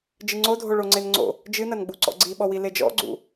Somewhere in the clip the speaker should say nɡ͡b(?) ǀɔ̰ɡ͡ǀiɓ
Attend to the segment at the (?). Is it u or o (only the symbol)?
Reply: u